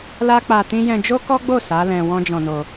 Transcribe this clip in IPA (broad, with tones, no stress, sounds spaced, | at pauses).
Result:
l a˦ k͡p a˧ t ĩ˦ j ɛ̃˧ d͡ʒ o˦ k ɔ˦ ɡ͡b o˦˨ s a˨˦ l ɛ̃˧ w ɔ̃˦ d͡ʒ ɔ̃˧ n o˧